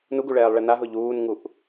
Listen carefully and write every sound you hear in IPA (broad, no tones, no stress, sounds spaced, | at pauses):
n u ɡ u ɭ ɛː lˠ ɭ ɛ n a ɦ ʊ ʎ uː n ŋ u ʔ